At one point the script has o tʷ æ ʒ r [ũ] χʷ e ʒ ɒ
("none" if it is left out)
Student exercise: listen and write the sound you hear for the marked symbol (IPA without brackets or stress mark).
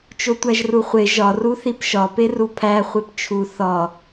u